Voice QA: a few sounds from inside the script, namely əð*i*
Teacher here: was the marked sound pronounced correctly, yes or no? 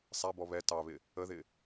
no